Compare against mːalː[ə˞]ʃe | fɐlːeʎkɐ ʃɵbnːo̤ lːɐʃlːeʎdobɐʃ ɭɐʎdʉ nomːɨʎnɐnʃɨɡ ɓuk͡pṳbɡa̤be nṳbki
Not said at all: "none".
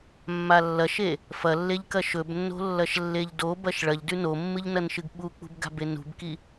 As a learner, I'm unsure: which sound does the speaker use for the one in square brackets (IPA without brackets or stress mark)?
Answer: ɐ